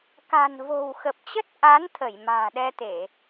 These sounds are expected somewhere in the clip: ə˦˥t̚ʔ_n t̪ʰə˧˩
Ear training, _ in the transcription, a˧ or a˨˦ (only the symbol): a˨˦